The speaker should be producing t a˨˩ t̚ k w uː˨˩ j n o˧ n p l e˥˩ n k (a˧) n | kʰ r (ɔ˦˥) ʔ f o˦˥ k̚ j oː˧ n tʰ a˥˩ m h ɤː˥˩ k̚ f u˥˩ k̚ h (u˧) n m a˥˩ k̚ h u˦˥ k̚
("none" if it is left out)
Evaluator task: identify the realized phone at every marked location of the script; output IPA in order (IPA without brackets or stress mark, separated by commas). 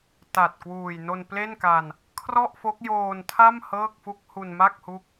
a˧, ɔ˥˩, u˧